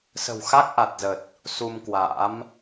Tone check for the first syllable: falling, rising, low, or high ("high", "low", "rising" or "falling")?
low